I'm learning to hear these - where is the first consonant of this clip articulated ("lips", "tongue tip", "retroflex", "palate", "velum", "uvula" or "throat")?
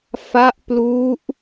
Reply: lips